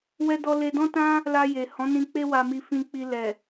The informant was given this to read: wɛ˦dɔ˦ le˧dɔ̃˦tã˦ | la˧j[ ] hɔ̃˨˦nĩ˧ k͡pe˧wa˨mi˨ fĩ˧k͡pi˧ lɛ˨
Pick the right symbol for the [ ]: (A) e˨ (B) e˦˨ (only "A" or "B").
A